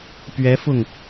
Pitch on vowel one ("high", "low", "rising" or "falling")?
rising